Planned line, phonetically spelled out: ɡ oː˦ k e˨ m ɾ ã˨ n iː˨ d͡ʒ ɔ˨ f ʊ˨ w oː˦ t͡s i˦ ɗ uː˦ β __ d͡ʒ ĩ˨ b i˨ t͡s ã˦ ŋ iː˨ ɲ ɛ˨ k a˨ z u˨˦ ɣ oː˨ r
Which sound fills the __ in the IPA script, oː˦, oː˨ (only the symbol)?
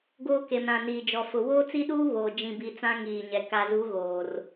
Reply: oː˨